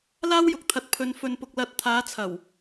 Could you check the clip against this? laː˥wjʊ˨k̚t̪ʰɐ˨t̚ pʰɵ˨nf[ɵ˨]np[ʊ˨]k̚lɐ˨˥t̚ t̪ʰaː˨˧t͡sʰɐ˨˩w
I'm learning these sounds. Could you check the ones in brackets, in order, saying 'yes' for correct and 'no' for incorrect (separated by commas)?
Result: yes, yes